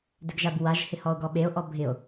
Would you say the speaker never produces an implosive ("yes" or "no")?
no